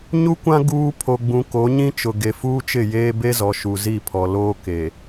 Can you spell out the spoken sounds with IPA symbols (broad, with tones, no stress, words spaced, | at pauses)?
ɲu˦kʷã˦ ɡuː˦ pʰo˨ɡ͡bũ˨ ko˨˦ɲĩ˦t͡ʃʊ˨ ɡe˨fuː˦t͡ʃɪ˦˨jeː˦ be˦zɔ˨ ʃu˨ zi˦˨pʰɔ˨ loː˦ke˨